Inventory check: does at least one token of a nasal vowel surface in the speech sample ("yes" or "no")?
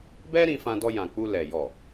yes